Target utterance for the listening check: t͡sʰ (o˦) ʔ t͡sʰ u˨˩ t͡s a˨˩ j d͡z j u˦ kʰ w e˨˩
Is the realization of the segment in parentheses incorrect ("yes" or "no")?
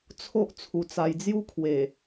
no